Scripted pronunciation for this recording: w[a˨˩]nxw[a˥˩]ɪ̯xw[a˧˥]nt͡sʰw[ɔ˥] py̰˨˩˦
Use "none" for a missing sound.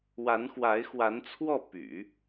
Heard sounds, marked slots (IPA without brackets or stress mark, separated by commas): a˧˥, a˧˥, a˧˥, ɔ˥˩